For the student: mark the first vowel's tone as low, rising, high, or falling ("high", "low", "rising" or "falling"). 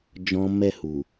high